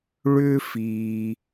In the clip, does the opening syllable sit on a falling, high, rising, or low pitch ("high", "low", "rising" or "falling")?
high